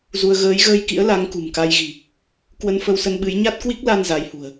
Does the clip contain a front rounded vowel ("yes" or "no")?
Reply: no